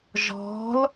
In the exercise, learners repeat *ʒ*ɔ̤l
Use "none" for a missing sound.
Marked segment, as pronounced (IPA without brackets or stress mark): ʒ